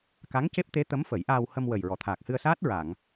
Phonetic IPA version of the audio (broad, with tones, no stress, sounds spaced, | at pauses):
k a˧˥ ŋ c e˦˥ p̚ t̪ e˧˥ t̪ ə˧˥ m f ə˨˩˦ j ʔ aː˧ w h ə˧ m w ə˨˩ j ɹ ɔ˨˩˨ t̪ʰ aː˨˩ k̚ h ɨ˧ ə̯ s aː˦˥ t̚ ɹ a˨˩˨ ŋ